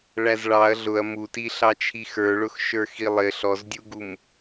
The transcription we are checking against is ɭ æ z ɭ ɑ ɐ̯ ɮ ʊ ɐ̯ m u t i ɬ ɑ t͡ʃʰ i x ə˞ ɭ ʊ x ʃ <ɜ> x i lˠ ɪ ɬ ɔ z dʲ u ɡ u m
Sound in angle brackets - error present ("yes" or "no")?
yes